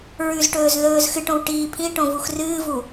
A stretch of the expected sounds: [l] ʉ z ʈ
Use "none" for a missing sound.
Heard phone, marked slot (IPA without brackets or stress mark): ɹ